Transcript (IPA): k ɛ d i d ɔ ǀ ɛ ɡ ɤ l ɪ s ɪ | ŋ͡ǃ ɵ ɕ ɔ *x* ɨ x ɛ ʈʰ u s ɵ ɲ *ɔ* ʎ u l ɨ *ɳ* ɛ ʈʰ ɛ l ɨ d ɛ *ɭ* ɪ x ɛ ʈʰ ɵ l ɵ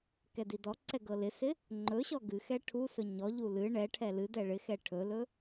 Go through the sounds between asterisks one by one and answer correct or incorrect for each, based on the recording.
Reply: incorrect, correct, correct, correct

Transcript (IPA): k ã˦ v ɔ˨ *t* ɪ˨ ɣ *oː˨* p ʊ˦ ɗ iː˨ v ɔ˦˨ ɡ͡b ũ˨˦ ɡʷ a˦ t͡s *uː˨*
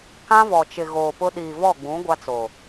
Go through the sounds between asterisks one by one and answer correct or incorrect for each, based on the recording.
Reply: incorrect, correct, incorrect

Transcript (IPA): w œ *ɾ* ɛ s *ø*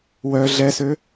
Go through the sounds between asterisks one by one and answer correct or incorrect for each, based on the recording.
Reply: incorrect, correct

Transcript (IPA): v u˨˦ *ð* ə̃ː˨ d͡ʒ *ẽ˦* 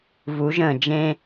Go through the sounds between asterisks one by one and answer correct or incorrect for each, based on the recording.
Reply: incorrect, correct

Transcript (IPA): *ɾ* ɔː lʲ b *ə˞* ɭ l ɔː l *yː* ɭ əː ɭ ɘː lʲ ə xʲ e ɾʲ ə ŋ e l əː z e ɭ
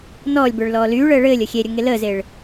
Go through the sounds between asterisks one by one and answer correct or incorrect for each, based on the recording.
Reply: incorrect, correct, correct

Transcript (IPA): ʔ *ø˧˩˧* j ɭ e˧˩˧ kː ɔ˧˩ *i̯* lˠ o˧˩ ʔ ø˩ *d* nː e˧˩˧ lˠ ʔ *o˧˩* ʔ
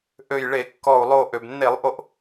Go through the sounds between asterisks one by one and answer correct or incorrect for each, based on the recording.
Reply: incorrect, incorrect, incorrect, correct

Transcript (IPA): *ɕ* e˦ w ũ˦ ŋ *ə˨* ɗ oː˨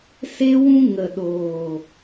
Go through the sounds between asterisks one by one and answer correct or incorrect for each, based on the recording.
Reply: incorrect, correct

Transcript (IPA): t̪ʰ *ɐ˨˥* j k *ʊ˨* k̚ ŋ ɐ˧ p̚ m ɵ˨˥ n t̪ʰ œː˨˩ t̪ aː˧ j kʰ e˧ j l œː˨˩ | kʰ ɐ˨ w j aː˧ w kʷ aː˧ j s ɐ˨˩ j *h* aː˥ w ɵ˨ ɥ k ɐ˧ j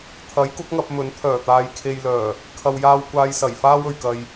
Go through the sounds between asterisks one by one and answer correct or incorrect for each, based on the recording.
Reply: correct, incorrect, incorrect

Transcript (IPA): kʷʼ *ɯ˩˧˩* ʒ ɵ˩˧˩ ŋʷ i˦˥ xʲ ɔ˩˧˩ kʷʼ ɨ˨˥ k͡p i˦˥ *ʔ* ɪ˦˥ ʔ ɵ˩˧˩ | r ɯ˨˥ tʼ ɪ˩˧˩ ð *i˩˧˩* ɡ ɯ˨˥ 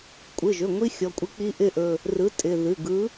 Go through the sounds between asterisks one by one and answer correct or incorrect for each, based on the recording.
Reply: correct, correct, incorrect

